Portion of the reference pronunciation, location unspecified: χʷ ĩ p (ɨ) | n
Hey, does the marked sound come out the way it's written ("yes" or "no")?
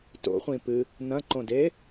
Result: yes